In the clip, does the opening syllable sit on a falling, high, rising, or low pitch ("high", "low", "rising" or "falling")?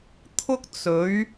high